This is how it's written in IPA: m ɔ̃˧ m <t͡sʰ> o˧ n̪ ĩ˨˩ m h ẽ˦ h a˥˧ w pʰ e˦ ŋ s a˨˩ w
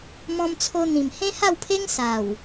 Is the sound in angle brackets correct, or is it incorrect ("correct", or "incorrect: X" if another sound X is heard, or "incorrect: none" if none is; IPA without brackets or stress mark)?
correct